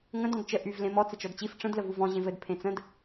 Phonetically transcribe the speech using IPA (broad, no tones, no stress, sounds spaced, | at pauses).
ŋ ə̃ d ɔ̃ d t͡ʃ ə ʔ y v l ẽ m ɔ t͡s ə t͡ʃ ɔ d t͡ɕ i f ʈ͡ʂ ə̃ d l ə v u v ɔ̃ ʑ ẽ v ɘ d pʰ ẽ t͡s ə̃ d